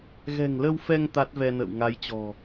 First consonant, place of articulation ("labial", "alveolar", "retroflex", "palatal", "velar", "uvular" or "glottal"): velar